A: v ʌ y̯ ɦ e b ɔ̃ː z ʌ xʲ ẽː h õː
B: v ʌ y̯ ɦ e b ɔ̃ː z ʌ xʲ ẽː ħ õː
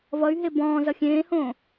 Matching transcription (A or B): A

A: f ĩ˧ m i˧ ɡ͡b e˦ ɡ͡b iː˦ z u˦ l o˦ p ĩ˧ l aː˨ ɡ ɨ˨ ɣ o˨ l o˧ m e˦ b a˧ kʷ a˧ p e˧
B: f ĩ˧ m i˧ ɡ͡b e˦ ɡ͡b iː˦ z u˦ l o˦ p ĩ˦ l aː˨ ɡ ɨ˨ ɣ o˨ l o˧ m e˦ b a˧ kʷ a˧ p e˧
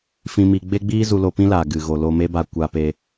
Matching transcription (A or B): B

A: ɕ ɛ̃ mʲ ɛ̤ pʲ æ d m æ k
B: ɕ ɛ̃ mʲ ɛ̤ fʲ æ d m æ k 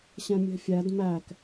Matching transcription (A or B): B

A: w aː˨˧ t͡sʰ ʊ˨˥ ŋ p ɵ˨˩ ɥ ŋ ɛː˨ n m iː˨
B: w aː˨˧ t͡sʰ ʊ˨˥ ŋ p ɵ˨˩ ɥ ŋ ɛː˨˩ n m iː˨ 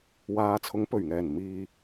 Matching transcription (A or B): B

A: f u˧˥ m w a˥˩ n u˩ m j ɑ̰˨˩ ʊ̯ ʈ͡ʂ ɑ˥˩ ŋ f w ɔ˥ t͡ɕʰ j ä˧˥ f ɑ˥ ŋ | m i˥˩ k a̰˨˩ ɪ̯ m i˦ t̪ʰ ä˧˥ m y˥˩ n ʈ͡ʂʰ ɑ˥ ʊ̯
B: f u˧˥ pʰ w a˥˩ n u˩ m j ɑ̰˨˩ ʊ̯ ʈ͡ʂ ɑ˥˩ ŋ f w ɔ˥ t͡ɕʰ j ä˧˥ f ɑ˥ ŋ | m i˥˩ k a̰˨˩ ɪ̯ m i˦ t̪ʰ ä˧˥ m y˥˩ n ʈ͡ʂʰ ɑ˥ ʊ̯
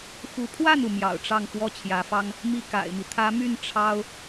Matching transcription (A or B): B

